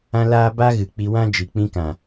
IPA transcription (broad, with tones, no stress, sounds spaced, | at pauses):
ã˦ l aː˦ b a˦ ɣ ɨ˨ k͡p i˧ w ã˦ d͡ʒ i˨ k͡p ĩ˧ k ã˨